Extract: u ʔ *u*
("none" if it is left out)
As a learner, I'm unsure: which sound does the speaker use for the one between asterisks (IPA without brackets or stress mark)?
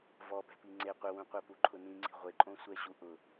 ʊ